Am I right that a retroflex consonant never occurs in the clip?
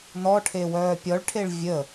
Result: no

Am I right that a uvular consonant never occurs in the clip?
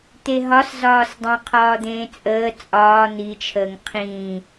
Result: no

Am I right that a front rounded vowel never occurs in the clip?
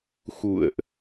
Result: yes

